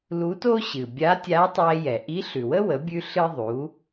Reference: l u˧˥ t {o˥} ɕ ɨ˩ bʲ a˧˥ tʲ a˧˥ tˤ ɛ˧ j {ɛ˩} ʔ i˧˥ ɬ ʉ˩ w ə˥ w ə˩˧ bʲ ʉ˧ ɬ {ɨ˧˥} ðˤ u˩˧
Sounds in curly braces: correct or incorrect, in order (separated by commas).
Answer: correct, correct, incorrect